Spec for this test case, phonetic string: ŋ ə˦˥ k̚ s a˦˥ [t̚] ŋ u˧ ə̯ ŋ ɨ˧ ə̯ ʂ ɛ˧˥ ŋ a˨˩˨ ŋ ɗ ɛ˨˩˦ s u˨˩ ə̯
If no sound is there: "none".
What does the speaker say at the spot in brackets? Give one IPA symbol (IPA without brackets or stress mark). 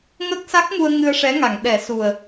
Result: k̚